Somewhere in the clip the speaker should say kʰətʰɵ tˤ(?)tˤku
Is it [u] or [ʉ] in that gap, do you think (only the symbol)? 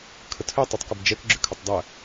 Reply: ʉ